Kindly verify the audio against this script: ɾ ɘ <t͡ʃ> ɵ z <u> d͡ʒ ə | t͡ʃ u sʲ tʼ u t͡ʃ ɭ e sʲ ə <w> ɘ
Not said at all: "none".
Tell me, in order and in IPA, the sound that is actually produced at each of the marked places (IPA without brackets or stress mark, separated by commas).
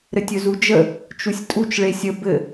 tʲ, u, b